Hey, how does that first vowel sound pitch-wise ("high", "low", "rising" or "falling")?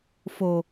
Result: low